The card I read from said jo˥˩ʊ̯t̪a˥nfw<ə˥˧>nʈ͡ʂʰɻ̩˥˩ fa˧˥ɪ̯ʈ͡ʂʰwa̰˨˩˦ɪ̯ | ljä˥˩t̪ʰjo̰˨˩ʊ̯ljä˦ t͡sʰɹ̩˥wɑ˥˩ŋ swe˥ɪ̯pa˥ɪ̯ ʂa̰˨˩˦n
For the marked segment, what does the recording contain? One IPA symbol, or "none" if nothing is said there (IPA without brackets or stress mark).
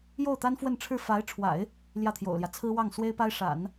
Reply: ə˥˧